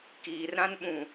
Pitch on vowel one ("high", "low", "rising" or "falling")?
low